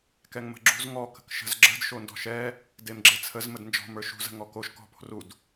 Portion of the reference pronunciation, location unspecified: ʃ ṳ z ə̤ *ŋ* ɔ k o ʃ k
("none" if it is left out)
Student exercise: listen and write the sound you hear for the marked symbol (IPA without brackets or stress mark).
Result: ŋ